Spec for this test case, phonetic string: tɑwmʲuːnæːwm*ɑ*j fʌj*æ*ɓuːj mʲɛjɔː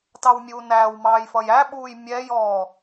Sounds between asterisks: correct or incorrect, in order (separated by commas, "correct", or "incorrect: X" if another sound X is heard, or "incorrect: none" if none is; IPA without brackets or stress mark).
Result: incorrect: ɑː, correct